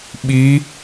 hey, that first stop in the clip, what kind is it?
implosive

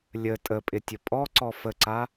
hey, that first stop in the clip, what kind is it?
ejective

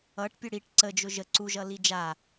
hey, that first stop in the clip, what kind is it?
plain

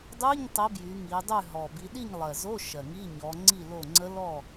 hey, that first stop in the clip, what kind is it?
plain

